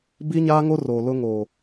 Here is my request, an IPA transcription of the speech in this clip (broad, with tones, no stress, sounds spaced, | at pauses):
b i˦ ɲ aː˦ ŋ o˦ r oː˨ l ʊ˦ ŋ oː˨